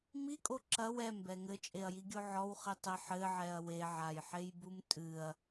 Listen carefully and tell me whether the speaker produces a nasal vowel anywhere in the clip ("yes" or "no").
no